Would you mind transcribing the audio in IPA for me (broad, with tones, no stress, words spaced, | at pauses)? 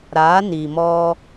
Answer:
ɾa˨˦ni˨mɔ˦